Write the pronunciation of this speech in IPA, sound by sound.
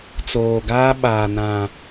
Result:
t͡s oː˨ ɡ aː˦ ɓ aː˨ n ã˨

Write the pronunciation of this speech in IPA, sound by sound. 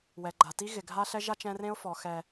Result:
w ɛ˨ ɡ͡ǃ a˨ t i˦ ɣ ɪ˨ ɡʱ a˦ ɬ ɛ˦ ʒ a˦ t͡ʃ ɛ̃˦ r ẽ˦ ʊ̯ f ɔ˨ x ɛ˨

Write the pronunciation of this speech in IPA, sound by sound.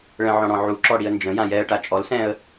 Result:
ɭ ə̃ ʕ ɔ̃ ɽ ɔ̃ ʕ u ǁ ɔ ɽ i ə̯ n d͡ʒ ə̃ j ã j ɛ ə̯ ʈ a t͡ʃʼ ɔ l s ɛ̃ ə̯

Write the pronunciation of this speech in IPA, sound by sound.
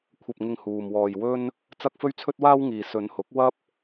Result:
kʷʰ ɐ˧ p̚ ŋ ɪ˧ ŋ h uː˨ m w ɔː˧ j w ɵ˥ n | t͡s ɐ˥ k̚ f ɵ˥ ɥ t͡sʰ ɵ˥ t̚ w aː˥ w ŋ iː˨ s ɵ˨˧ n h ʊ˨˥ k̚ w ɐ˥ p̚

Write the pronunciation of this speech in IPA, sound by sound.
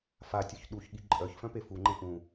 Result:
f a tʲ ɔ ç ɗ u ç ɠ i ǃʼ œ ç f œ̃ p e f u ŋ͡ǃ ẽ ʔ ũ

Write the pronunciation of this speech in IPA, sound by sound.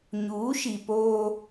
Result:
ɲ uː˨˦ ʃ i˨ p oː˦

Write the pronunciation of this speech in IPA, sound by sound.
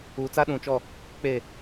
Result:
uː˨ t͡s a˦ ɗ ũ˨ t͡ʃ ɔ˦˨ | k͡p e˦˨

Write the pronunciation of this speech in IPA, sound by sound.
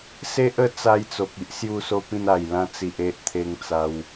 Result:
s e˦ ʔ ə˥˧ t͡s a˧ j t͡s o˨ k̚ i˦ ʔ s j u˥˧ s o˥˧ p ĩ˥˧ n a˨˩ j l ã˦ t͡s i˨ ʔ e˦ ʔ t̪ʰ e˧ ŋ t͡s a˧ w

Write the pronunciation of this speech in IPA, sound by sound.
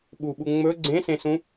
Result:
ɓ u ɓ u ŋ͡m ɵ ɡ͡ǀ ẽ s ẽ s ũ

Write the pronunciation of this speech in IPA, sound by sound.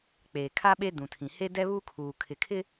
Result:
k͡p eː˨ kʰ a˦ ɓ e˦ d ũ˨ tʰ ĩ˨ h e˦ d ɛ˦ β uː˦ kʰ uː˨ kʰ ɪ˨ kʰ ɪ˦

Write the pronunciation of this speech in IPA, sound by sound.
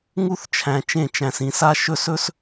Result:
ŋ u˦ θ t͡ʃʰ æ̃˨ t͡ʃ ẽ˦˨ t͡ʃ æ̃˨ s ĩ˨ s a˦ ʃ ɵ˦˨ s ɵ˦ s

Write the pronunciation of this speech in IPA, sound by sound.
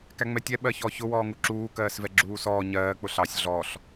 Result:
k æ ŋ͡m ɛ tʲ ɛ ɓ ɜ ç ɔ ç ʊ w ɔː ŋ u ǁ uː k ɜː s v ɛ ɡ͡ǁ uː s ɔː ɲ ɜː k͡p ʊ ɬ ɑ sʲ ɮ ɔ ɬ

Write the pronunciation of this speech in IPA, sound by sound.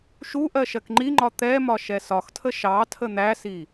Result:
ʃ u ʔ ɜ ʃ ɜ k ŋ͡ǃ i ŋ͡ǃ ɒ t̪ ɛ m ɒ ʃ ɛ s ɒ x tʰ ə ʃ ɑ tʰ ə n̪ æ s i

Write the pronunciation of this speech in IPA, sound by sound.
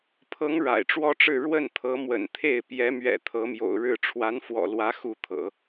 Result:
pʰ ɤ˧˥ ŋ ɻ a̰˨˩ ɪ̯ ʈ͡ʂ w ɔ˥ ʈ͡ʂ ɻ̩˥˧ ɻ w ə˥˩ n t̪ʰ ɤ˧˥ m w ə̰˨˩ n t̪ʰ e˥˩ ɪ̯ p j ɛ˧˥ m ɥ ɛ̰˨˩ t̪ʰ ɤ˧˥ m j o̰˨˩ ʊ̯ ɻ ɻ̩˥˩ ʈ͡ʂʰ w a˧˥ n f w ɔ̰˨˩ l w ä˧˥ x u˥˩ t̪ʰ ɤ̰˨˩˦

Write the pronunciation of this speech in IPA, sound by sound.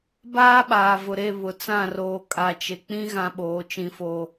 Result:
b aː˦ ɓ aː˨ v ʊ˨ ɾ e˦˨ β ʊ˨ t͡s ã˦˨ r oː˨ kʼ a˨ t͡ʃ e˨ k͡p ĩ˦ ɣ ã˦ ɓ oː˨˦ t͡ʃ ĩ˦˨ f oː˦

